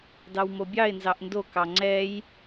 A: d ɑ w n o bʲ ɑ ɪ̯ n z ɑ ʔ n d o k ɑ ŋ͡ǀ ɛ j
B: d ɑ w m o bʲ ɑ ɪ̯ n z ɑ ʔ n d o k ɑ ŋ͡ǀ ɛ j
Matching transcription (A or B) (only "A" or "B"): B